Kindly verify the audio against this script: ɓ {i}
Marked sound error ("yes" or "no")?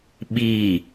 no